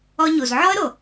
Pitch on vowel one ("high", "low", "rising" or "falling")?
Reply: high